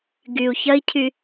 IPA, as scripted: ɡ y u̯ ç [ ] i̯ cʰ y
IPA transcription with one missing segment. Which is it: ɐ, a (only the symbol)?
ɐ